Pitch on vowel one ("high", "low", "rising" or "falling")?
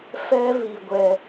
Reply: high